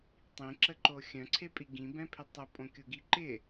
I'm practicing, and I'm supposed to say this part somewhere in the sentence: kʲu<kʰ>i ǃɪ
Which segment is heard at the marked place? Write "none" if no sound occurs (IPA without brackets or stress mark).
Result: ɡ